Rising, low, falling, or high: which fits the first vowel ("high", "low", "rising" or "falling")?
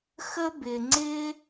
high